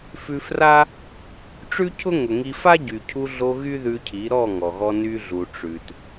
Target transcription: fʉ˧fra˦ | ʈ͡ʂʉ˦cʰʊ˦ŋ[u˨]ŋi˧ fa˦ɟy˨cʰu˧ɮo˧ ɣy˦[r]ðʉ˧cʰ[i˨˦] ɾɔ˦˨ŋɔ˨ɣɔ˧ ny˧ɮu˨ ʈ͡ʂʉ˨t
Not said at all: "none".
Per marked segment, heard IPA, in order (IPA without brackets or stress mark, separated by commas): ʊ˨, none, i˨˦